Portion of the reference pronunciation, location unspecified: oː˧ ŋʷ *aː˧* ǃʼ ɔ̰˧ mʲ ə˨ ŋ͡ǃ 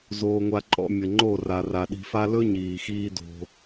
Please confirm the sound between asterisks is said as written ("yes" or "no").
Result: no